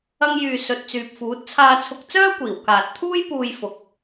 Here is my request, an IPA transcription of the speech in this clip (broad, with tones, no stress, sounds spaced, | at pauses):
ɐ˥ ŋ j yː˧ s ɵ˧ t̚ t͡s yː˨ p̚ f uː˨˥ t̚ t͡sʰ aː˧ t͡sʰ ʊ˧ k̚ t͡s œː˥ kʷ iː˨˩ w k aː˨ t̚ t̪ʰ uː˥ j p uː˧ j f ʊ˨ k̚